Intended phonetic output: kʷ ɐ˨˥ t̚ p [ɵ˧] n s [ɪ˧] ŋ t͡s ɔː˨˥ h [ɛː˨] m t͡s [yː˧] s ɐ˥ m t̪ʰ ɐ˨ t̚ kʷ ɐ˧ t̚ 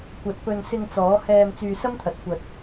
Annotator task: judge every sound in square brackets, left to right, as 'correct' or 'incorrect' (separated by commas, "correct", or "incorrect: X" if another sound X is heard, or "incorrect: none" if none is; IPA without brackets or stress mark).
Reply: correct, correct, incorrect: ɛː˧, correct